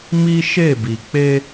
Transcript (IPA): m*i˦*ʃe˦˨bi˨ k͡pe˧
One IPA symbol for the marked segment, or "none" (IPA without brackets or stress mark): i˦